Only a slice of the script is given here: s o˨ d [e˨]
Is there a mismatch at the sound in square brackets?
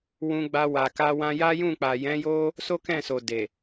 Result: no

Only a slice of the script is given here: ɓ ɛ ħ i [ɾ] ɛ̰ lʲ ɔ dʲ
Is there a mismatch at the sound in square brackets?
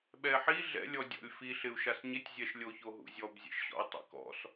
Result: yes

